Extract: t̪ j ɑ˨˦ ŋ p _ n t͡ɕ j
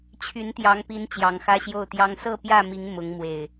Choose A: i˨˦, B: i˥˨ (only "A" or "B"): A